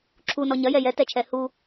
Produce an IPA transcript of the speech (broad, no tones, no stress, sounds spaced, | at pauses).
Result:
ǁʰ u n ɔ ɲ ɐ j ɛ j ɛ t ɛ t͡ʃʰ ɛ h u